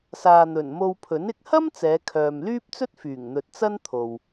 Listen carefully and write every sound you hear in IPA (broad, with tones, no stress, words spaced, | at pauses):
saː˨n̪ɵ˨˩nmo˧wpʰɵ˨˥n ɪ˨˥k̚hɐ˥m t͡sɛː˨˧kʰœː˨mlyː˥p̚ t͡sɵ˥t̚fyː˨˩ŋn̪ɵ˨t̚ t͡sɐ˥nt̪ʰo˨w